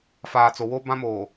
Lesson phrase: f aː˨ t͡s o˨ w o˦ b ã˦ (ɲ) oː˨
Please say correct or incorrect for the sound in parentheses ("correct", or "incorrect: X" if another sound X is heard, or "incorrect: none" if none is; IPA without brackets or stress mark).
incorrect: m